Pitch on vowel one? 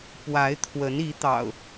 rising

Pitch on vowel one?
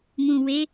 low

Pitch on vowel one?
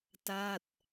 falling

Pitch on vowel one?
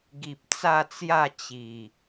low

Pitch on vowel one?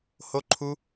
high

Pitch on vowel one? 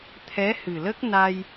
rising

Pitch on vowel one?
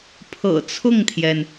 low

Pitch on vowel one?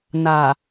low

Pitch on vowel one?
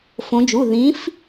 rising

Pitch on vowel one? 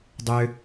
low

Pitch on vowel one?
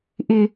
high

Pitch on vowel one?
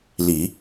low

